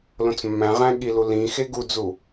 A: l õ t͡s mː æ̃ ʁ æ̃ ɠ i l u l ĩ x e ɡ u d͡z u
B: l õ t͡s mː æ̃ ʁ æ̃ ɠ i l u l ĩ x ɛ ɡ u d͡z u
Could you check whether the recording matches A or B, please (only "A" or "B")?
A